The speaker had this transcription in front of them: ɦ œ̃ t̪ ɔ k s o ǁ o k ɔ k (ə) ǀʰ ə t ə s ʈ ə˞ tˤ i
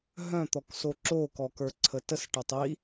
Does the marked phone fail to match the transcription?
yes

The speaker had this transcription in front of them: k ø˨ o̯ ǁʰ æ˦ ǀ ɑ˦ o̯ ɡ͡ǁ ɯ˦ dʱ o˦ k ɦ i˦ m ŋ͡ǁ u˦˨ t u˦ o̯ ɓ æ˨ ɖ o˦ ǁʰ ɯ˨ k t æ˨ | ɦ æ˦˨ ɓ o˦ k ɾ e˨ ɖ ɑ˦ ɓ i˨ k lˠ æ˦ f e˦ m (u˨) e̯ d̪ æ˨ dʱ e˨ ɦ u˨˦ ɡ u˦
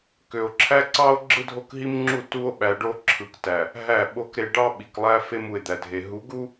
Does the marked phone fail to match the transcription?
no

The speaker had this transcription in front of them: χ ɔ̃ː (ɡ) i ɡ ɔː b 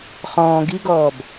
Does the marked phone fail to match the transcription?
no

